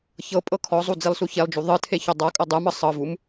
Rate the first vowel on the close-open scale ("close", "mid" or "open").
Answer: mid